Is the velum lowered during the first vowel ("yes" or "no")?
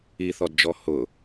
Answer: no